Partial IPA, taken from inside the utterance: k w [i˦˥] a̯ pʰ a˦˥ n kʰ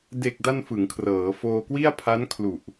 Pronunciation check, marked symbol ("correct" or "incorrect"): incorrect